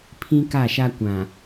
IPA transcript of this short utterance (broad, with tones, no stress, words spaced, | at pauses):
pʰĩ˦ka˦˨ʃa˦ kʷã˨